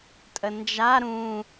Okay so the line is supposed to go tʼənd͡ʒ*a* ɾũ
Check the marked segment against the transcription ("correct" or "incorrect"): correct